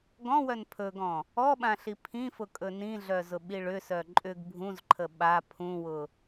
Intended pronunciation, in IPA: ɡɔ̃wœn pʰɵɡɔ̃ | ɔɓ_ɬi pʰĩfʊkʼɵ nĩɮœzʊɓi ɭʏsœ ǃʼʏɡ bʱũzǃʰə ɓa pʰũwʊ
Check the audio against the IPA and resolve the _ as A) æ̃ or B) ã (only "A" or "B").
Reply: B